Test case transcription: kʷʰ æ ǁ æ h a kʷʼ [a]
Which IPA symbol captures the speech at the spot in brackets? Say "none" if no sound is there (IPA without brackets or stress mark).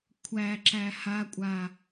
a